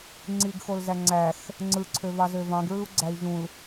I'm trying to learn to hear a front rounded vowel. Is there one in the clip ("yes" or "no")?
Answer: yes